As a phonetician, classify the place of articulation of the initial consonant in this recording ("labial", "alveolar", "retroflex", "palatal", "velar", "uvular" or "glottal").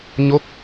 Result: palatal